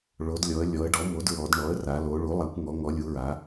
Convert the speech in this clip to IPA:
ɭ o˩˧ d lʲ ɔ˩˧ ə̯ lʲ ɔ˩˧ ə̯ ɖ ɔ˩˥ m o˩˥ d ɹ ɔ˩˧ d ɳ ɔ˩˥ ə̯ r a˩˧ l o˩˧ ɭ u˩˥ lˠ a˩˧ kʷ ŋ ɔ˩˧ ŋ ɔ˩˧ lʲ u˩˧ ɹ a˩˧

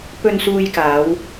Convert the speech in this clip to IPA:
p ɵ˧ n s uː˧ j k aː˨˧ w

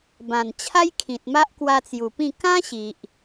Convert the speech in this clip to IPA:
b ã˨˩ n t͡ɕʰ a˦ j kʰ ĩ˨ t̚ m a˦ ʔ k w a˧ t͡s j u˨˩ p ĩ˥˧ k ã˦ ɕ i˨ ʔ

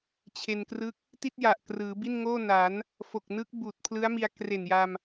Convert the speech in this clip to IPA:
t͡ɕʰ e˧ n k r ɯ˦˥ k̚ | t i˥˩ t̚ j a˨˩ ʔ k r ɯː˩˦ b i˥˩ n ŋ oː˥˩ n a˩˦ n | f o˨˩ k̚ n ɯ˦˥ k̚ b uː˨˩ t̚ pʰ l ɯ˦˥ a̯ m i˧ a̯ k r e˨˩ n j a˧ m

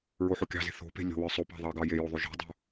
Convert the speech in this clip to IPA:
ɹ o ħ o kʲ ɑ̤ z e̤ θ o̤ p e̤ lʲ o̤ w ə˞ sˤ o p ɑ̤ ðˤ ɑ ɡ ɑ j e j o ðˤ o ʒ o̤ dˤ o̤

